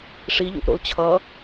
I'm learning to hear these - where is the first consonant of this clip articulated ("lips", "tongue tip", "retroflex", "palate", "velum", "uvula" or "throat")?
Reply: retroflex